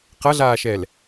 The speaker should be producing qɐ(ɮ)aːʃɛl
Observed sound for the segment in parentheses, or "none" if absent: ɮ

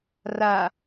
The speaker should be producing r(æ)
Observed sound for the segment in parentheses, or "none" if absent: a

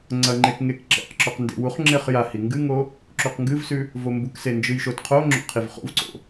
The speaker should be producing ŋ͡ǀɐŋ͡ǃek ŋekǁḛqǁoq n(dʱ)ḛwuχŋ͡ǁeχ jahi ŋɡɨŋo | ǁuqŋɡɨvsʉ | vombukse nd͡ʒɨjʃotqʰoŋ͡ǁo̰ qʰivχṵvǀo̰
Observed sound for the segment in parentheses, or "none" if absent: d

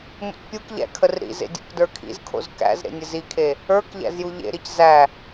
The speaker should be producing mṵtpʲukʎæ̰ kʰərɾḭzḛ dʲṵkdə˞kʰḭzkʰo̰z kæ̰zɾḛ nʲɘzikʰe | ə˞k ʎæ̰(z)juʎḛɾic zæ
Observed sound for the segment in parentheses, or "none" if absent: z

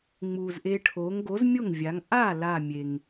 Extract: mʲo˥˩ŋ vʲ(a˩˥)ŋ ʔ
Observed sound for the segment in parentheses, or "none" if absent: a˩˥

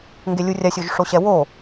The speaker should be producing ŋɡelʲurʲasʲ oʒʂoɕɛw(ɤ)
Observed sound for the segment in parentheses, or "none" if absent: o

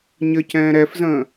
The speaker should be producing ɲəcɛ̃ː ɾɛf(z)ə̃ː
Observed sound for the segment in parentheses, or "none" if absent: z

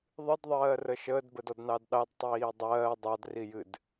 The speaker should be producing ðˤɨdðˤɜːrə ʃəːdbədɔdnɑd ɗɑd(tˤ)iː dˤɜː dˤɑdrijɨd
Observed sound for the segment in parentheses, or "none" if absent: tˤ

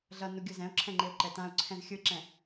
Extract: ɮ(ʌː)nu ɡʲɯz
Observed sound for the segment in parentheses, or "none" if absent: ʌ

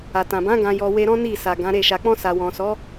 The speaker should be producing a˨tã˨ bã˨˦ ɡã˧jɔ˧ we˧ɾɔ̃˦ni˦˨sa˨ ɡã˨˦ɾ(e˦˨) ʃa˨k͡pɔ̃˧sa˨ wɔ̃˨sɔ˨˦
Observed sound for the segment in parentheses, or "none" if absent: e˦˨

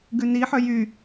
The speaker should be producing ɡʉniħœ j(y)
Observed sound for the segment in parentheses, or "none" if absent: y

